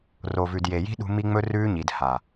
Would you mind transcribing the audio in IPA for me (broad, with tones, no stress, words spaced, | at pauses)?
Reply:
ro˨vʉ˨d je˨ji̤˦ɗṳ˧ mi˦ŋ͡mɵ˦rʉː˦ɲi˨d ha˨